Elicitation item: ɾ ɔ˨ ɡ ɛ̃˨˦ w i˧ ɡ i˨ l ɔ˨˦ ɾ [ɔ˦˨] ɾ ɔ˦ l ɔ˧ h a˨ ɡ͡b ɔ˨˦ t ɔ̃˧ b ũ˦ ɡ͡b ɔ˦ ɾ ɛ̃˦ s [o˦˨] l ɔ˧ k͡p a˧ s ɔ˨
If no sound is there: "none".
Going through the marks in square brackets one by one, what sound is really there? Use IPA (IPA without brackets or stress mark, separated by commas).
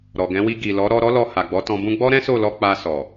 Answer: ɔ˧, o˦˨